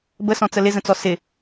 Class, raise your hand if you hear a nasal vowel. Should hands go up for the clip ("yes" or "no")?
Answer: yes